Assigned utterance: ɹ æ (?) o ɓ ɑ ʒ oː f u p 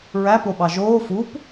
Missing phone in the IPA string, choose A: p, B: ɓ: A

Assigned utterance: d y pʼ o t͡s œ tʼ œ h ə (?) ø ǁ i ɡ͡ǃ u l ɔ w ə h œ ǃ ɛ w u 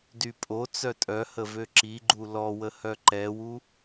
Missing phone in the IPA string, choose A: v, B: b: A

